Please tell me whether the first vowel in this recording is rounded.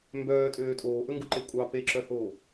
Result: yes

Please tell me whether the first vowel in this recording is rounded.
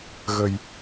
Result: no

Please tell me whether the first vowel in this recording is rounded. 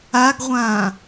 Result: no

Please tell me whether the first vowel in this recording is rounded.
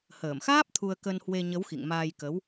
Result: no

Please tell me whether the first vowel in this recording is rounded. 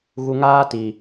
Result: yes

